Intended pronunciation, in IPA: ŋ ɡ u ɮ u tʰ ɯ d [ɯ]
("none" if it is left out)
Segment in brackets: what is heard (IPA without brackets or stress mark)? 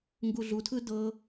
ɤ